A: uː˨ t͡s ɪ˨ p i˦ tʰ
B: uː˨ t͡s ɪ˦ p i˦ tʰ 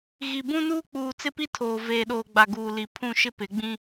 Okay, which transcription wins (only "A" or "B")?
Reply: B